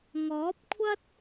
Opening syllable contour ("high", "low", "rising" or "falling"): rising